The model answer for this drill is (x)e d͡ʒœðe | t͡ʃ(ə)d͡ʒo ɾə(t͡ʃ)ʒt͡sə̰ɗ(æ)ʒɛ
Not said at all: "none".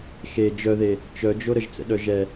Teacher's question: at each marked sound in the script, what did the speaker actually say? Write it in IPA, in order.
x, œ, none, œ

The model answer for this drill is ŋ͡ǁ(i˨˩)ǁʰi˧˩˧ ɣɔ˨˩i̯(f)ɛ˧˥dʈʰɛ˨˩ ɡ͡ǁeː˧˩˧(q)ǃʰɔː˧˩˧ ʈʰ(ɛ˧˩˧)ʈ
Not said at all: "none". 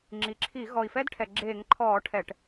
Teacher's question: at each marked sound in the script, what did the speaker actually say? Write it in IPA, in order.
i˨˩, f, ŋ, ɛ˧˩˧

